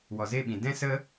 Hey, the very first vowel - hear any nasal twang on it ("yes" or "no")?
no